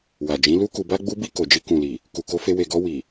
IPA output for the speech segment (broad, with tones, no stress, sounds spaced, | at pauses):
w a˨ d͡ʒ ĩ˨˦ l u˦ k u˧ b a˦ ɡ͡b u˧ b i˧ k o˨ d͡ʒ i˧ k ũ˨ l i˨ | k u˨ k o˧ f e˧ w e˨ ɡ ɔ˧ w i˨